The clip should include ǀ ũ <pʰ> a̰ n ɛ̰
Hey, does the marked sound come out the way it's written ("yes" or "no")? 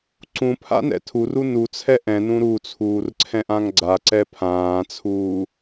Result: yes